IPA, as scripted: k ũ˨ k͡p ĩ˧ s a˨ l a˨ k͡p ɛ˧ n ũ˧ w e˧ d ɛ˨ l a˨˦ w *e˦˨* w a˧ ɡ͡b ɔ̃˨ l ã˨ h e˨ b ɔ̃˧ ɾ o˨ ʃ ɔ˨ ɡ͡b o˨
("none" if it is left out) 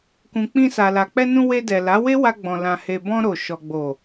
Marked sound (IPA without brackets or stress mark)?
e˦